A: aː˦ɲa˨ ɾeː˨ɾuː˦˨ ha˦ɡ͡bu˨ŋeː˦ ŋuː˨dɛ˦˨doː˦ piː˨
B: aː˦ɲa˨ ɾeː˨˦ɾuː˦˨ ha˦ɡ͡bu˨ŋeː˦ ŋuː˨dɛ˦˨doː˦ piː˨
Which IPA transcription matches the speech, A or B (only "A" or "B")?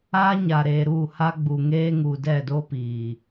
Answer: A